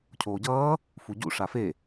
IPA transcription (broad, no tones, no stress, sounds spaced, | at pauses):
cʰ oː ɟ ʌː | f u ɟ ṵ ʂ a f e